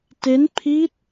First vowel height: mid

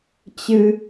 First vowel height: high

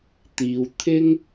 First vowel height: high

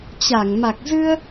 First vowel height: low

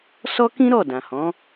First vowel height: mid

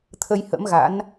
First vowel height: mid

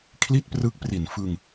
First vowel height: high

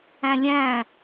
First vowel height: low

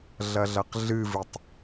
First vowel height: low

